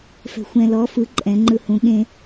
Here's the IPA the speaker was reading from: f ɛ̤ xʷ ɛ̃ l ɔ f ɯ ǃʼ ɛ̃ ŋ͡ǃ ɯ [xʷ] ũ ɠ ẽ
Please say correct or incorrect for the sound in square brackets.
incorrect